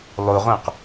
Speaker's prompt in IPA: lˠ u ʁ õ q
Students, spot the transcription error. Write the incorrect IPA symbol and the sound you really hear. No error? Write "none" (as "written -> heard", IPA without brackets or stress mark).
none